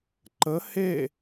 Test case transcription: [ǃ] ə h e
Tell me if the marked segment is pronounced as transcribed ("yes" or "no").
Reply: yes